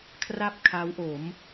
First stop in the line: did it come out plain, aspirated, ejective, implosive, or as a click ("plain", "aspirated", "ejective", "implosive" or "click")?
aspirated